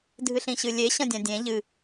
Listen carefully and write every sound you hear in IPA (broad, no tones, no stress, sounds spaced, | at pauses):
dʱ ɨ ɬ ĩ ɕ ɨ lʲ e ɕ ɐ̃ dʲ ã dʲ ẽ ʎ ɨ